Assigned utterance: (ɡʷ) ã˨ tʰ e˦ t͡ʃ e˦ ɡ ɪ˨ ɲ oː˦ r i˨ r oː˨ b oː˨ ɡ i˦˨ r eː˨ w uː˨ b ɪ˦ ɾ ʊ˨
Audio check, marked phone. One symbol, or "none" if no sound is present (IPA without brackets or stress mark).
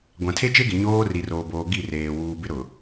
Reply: ɡʷ